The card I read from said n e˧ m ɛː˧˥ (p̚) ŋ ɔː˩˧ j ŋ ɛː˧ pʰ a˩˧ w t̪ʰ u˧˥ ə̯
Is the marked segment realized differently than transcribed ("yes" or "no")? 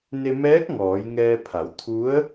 yes